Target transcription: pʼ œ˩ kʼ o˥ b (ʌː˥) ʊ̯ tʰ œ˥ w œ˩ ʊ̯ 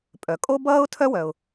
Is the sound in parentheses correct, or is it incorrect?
correct